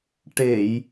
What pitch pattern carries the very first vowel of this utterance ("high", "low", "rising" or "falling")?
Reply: low